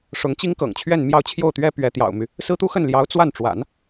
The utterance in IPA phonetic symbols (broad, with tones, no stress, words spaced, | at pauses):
ʂʊ˧˥ŋt͡ɕi˥ŋkɤ̰˨˩ŋt͡ɕʰɥɛ˥˧n mjɑ˥˧ʊ̯ t͡ɕʰjo˥˩ʊ̯t̪ɥɛ˥ pɥɛ˧˥t̪jɑ̰˨˩ʊ̯my˦ | sɹ̩˥t̪u˥ xə˥˩nljɑ˧˥ʊ̯ t͡swa˥˩nʈ͡ʂwa̰˨˩˦n